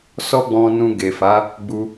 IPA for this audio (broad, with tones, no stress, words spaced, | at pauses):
sɔ˦ɡ͡bɔ̃˧nũ˧ ɡe˨fa˨˦ | ɡ͡bu˧